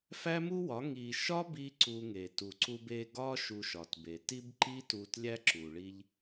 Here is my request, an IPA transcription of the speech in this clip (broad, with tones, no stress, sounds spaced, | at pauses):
f æ˦ m u˦ w ɒ˨˦ ŋ i˨ ʃ ɒ˦ b i˧ ǀ u˧ ŋ e˨ t u˨ ǀ u˧ b e˧ ɡ ɒ˦ ʃ u˧ ʃ ɒ˨ t b e˨ t i˦ b ǃ i˦ t u˧ t lʲ æ˦ ǁ u˨ ɭ i˧ ʎ